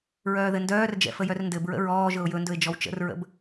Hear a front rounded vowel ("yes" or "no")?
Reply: yes